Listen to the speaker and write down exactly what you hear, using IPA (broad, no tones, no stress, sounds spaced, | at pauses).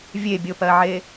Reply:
vʲ e bʲ o p ɜ ʕ e